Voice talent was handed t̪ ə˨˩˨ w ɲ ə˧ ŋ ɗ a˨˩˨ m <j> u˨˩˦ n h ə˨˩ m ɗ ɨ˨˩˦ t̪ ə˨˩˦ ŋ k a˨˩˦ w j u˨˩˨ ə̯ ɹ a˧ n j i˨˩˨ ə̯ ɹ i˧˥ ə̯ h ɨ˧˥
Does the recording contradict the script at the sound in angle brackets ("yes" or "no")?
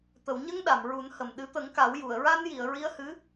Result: yes